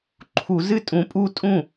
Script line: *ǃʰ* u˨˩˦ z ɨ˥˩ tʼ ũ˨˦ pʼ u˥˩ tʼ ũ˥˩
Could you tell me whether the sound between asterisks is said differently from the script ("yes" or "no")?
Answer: no